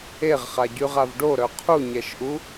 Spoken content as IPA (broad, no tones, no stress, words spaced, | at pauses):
eʁχaɟyʁav ɖoɾœ qʰuɲɛʃʔu